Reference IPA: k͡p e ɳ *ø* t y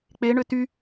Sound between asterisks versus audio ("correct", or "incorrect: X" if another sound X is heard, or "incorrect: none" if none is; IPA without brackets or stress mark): correct